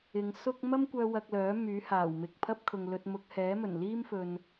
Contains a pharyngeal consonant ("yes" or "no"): no